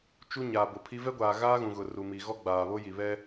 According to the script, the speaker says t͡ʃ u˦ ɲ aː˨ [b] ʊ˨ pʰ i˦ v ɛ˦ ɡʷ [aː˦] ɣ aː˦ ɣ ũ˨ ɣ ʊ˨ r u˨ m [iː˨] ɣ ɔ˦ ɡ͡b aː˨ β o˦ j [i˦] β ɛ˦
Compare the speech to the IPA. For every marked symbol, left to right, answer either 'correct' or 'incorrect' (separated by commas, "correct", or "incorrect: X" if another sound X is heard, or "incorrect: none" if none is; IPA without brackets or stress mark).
correct, incorrect: aː˨, incorrect: i˨, incorrect: i˨